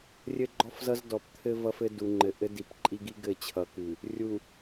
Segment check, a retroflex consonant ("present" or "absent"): absent